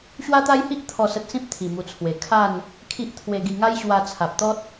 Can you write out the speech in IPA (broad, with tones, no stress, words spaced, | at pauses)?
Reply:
ɕwa˦t̪a˦jhi˦ʔ t̪ʰɔ˥˧sə˦t̚ sĩ˦p̚t̪ʰi˨˩ mu˨˩t͡sʰwe˨˩ kʰa˥˧n | kʰi˦ʔt̪ʰwe˧ɡi˧ ŋa˦jɕwa˧t͡sʰa˨p̚t̪ɔ˦t̚